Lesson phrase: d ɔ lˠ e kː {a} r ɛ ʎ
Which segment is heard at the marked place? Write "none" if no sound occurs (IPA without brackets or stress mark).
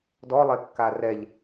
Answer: a